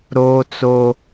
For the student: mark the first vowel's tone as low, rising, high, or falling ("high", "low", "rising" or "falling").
high